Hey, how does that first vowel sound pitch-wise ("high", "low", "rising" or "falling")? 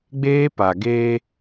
high